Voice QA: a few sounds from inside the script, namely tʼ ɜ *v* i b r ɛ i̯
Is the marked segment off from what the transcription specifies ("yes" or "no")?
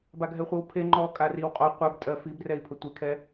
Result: yes